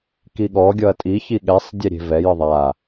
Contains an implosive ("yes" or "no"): yes